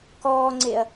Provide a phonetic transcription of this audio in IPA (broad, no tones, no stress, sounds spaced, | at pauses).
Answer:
k ɔː ŋ͡ǀ e ɐ̯